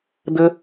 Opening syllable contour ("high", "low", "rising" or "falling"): high